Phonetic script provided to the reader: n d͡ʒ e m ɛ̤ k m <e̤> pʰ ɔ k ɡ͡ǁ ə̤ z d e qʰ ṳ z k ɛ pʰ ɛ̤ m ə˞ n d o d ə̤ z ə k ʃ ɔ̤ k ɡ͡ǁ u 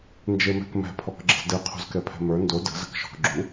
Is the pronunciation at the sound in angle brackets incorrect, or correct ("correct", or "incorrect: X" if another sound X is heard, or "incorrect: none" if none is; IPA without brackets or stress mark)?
incorrect: ɛ̤